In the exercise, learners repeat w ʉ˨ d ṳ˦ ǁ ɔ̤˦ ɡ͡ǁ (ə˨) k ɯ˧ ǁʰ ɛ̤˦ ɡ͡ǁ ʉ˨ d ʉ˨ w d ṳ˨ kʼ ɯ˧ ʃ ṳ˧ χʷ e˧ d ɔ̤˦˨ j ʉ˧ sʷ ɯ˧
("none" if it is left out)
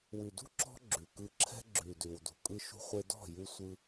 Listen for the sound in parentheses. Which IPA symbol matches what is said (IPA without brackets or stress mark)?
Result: ʉ˨